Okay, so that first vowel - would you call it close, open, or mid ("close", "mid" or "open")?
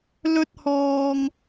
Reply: mid